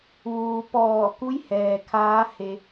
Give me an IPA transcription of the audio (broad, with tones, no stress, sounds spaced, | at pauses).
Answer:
ʋ uː˩ p ɔː˧˩ k u˧˥ j h ɛː˩ kʰ aː˧˥ h e˧